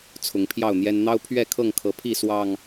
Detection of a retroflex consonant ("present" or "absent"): absent